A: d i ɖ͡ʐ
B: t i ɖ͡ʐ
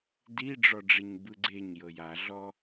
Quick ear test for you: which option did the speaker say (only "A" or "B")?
A